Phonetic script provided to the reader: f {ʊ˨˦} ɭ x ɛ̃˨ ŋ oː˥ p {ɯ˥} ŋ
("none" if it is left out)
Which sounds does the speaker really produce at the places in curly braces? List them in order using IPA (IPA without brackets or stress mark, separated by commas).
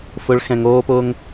ʊ˨˦, ʊ˥